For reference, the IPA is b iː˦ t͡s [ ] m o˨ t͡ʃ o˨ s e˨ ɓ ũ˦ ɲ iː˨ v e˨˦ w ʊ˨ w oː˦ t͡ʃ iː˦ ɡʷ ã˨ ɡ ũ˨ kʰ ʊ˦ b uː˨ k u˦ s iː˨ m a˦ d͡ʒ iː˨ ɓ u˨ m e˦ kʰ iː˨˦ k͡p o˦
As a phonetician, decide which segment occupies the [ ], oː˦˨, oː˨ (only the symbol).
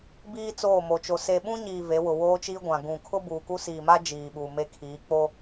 oː˦˨